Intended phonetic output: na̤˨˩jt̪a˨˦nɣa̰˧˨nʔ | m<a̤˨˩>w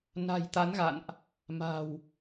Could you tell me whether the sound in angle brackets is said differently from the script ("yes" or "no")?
no